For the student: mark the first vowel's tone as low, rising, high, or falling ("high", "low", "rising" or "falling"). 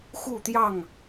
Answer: falling